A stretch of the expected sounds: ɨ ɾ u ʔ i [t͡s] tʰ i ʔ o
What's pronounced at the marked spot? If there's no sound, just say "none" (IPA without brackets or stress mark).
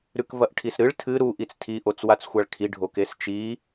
t͡s